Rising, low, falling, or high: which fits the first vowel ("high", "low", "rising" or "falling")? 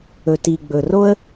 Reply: low